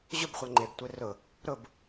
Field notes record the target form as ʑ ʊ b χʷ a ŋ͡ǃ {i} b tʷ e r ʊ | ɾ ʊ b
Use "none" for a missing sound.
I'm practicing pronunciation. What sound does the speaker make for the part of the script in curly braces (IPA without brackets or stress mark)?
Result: e